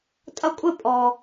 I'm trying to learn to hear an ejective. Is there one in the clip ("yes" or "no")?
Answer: yes